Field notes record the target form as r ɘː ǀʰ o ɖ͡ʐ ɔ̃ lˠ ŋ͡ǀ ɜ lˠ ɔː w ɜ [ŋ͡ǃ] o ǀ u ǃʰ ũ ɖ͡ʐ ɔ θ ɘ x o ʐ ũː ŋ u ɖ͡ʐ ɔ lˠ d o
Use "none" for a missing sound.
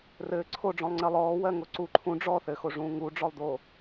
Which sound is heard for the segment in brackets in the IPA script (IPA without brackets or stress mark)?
ŋ